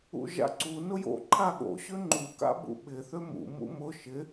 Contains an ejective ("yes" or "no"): no